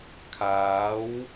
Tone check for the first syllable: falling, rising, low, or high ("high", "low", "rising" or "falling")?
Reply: rising